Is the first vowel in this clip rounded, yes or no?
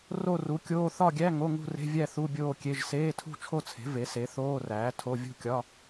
yes